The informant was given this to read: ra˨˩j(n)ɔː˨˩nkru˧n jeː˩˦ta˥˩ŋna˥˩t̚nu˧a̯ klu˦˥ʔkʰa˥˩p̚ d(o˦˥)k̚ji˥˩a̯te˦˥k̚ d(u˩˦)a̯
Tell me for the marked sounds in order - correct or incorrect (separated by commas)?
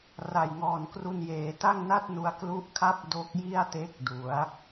incorrect, correct, correct